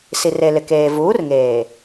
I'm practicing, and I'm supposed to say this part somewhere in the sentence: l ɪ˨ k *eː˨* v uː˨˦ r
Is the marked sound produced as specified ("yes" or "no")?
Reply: yes